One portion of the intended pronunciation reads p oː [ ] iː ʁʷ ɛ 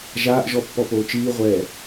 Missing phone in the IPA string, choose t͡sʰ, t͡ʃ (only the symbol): t͡ʃ